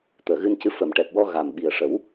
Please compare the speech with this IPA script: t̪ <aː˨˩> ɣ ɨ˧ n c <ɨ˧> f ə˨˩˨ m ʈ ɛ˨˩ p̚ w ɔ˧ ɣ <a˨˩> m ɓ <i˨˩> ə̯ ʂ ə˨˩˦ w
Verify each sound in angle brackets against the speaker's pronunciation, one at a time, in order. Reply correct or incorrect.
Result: incorrect, correct, correct, correct

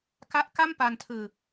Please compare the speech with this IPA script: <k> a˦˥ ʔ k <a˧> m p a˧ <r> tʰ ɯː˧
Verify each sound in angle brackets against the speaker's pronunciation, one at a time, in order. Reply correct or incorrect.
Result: correct, incorrect, incorrect

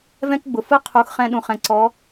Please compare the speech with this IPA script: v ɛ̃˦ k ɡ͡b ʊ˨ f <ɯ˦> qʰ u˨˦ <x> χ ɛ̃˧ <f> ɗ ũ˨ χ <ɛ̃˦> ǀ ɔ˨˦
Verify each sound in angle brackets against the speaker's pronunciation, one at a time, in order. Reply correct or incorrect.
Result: correct, correct, incorrect, incorrect

